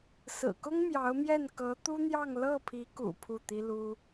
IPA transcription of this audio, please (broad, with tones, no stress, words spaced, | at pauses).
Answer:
sɹ̩˨˩kʊ˥ŋ mjɑ˧˥ʊ̯mjɛ˥˩n kɤ˧˥t̪u˥n̪jɑ˥˧ŋ lɤ˥˩pʰi˧˥kṵ˨˩ pʰu˥˩t̪i˥lu˥